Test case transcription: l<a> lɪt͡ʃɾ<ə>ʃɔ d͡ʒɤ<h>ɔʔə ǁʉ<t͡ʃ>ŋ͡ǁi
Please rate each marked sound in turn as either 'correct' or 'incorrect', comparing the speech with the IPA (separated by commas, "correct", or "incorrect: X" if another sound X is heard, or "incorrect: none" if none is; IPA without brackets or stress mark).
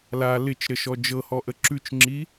correct, correct, correct, correct